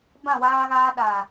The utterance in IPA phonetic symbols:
bã˦˨waː˦ɣaː˦ ɗa˨

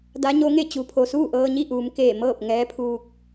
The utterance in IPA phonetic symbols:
da˧˥ɲo˧˥ŋe˥˨ t͡ɕu˩˧pʰo˩suː˥˨ ʔɤː˧ɲi˥˨ʔuː˩˧m keː˧˩mɤː˥˨p̚ ŋɛː˧˥pʰuː˧k̚

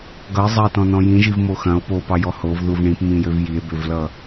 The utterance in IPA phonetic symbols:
ɡʌe̯zˤɐe̯tɔ̃nɔ̃ jĩʒivmo xɐ̃o̯ popɑjɔ hovðuv ɳĩpmĩjøv jie̯bøvlʌ

